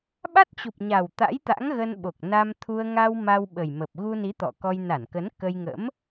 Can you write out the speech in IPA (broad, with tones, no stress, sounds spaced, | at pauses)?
ɓ a˦˥ t̚ t͡ɕ u˨˩ p̚ ɲ a˨˩ w t̪ a̰˧˥ j t̪ a̰˧˥ ŋ ɣ ə˧ n ɓ o˨˩ k̚ n a˧ m t̪ʰ u˧ ə̯ ŋ a˧ w m a˧ w ɓ ə˨˩ j m ə˨˩ p̚ ɣ u˧ n i˨˦ t̪ ɔ̰˧˨ k ɔ˧ j n a˧˩ n k ə˨˦ n k ə˧ j ŋ ə̰˧˥ m